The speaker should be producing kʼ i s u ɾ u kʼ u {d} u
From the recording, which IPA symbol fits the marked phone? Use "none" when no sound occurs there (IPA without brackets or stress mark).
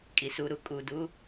d